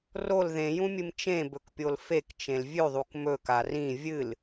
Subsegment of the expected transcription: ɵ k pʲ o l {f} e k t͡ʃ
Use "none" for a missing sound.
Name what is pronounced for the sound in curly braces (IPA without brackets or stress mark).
f